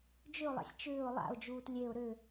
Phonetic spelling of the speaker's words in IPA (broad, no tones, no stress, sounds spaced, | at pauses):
d͡ʒ ʏ ʊ̯ lˠ ɛ̰ sʲ t͡ʃ ʏː ʊ̯ lˠ a̰ ʊ̯ d͡ʒ uː t lʲ e ʊ̯ ɾ ʏ